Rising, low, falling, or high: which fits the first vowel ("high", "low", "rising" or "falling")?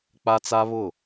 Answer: high